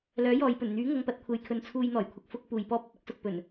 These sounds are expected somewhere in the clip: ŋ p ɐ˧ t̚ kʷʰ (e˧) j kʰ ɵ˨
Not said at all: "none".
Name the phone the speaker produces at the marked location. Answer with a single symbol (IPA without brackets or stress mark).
e˨